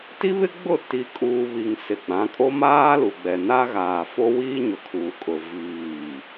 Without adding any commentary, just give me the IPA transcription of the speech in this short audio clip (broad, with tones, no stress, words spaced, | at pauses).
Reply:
ti˦βɪ˦ɡ͡bʊ˦˨ ti˨kʼuː˨ βi˨ŋsɪ˨ɡ͡bã˨˦kʼo˦ maː˦lu˨ɡ͡bɛ˨ na˦ɣaː˨fo˦ wiː˦ɲʊ˨kʰuː˨ kʼʊ˨ viː˦˨